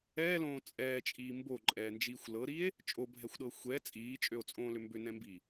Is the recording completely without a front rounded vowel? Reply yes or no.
no